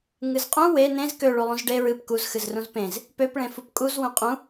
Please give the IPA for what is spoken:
ŋɨzqʼũ we nẽz kø ɭulˠũzɖe ɹɨp kuz xɨzrũzpẽz | pøp ɭẽfupkʼuz wũqʼũ

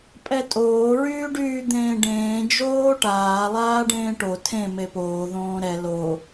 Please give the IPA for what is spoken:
pʼɛtʼoː ɹyːɖyːd̪ẽːɖẽː d͡ʒoːʈaː lˠaːɖẽːʈo tʰẽ mepoː ðõːɾɛ lo

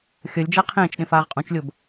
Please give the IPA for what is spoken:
xʲʌlʲd͡ʒa qʰẽːt͡ʃɗẽf aːʁqʼũt͡ʃlʲob

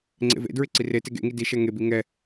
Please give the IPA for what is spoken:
ŋ͡ǀḛvḛdɹɪ ǀirete ɡḛŋi diʃɛ ŋebi ŋɛ

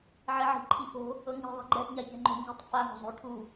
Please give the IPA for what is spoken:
ʕeʕi̤ ǃʰifo̤ | ɤŋi̤ ðˤɛ̤ɡ͡ǃɛʔ ɲaçɛ̤ŋ͡ǃo̤ ŋi̤tˤ fa ŋo̤zˤo̤u̯ʈʰu

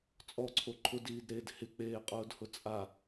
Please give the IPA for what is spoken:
t͡sʼɔǀʰo ǃʰʊdiːdɾeːd hɪk͡peːqʼʊːdhʊ t͡sʼa

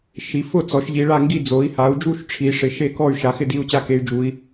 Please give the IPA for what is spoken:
ʃi˩˧ fʊ˦˨t͡sɔ˩˧ʃ ʎi˩˧ɭa˦˨ŋɡi˦˨ d͡zo˩˧i̯ha˩˧u̯d͡ʒu˦˨ʃ ʈ͡ʂʰi˩˧ʂɪ˩˧ ʃe˦˨kɔ˦˨y̯ ʃa˩˧xɪ˦˨di˦˨u̯t͡ɕa˦˨ ke˩˧y̯d͡ʒu˩˧i̯

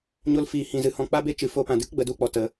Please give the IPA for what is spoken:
ɲo˧lfiː˨ hĩ˨zɨ˨hɔ̃˧ k͡pa˦be˦t͡ʃɨ˨ fo˧pã˨ dɨ˦kɡ͡bə˨ du˦k͡pɔ˨ tə˧

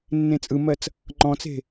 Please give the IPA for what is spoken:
nːẽt͡sʼɯmɜt͡s | ŋ͡ǃɔ̃t͡se̤

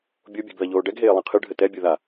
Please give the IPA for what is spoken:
bʲobʲɛ̤ɡ ðɐʎoːɖɛɡɦeː lˠẽqʰɨɖʱɘ tɛbʲu ða

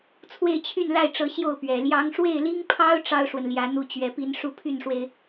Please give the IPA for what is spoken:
t͡sʰwe˥˧ɪ̯t͡ɕʰy˥˧nla˥˩ɪ̯ʈ͡ʂɤ˧˥ ɕjo˥˩ʊ̯pɥɛ˨˩ ljɑ˧˥ŋʂwe˥˩ɪ̯li˥ŋpʰɑ˥ʊ̯ ʈ͡ʂɑ˥ʊ̯ʂwə˨nljä˧˥ n̪u˥˩t͡ɕɥɛ˧˥pi˥n ʂu˥pʰy˥˩nʂwe˩ɪ̯

